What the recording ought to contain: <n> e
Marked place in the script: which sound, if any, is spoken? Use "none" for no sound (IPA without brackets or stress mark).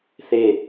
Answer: θ